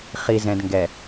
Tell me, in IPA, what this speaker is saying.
χ i˨ z ɛ̃˨ d ŋ ɡ ɛ˨

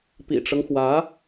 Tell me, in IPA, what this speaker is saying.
p ḭ˨˩ ʈ͡ʂ ɤ˦ ŋ x w ä˧˥

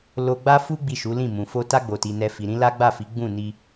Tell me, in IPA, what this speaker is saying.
l o˧ ɡ͡b a˦ f u˦ ɡ͡b i˦˨ ʃ u˨˦ l ĩ˦˨ m ũ˨ f o˧ t a˧ ɡ͡b o˨ t i˨ n ɛ˧ f i˨ ɾ ĩ˨˦ l a˦ ɡ͡b a˦˨ f i˨˦ ɡ͡b ũ˦˨ n i˧

